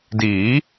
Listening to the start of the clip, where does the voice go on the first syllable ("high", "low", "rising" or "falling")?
rising